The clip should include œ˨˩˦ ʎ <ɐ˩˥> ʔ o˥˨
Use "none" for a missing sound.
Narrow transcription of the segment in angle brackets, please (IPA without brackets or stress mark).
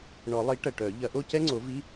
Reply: ɐ˨˩˦